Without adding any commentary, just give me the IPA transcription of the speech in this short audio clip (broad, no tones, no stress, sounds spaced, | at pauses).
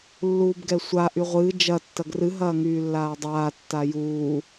lː uː b ɡ ɛ sʷ a ʔ y ʁʷ ɨː d͡ʒ ɐ tː ɐ ɡ r ɨ ɦ ɐː ŋ yː lː aː dˤ aː tː a j uː